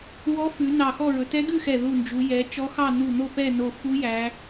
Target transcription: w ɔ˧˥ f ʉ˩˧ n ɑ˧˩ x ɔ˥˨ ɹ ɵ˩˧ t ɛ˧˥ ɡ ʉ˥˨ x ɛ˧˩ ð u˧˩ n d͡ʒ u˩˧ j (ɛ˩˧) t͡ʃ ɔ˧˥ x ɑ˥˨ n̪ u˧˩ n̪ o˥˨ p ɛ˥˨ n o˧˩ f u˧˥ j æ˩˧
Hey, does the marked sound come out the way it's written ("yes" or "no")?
yes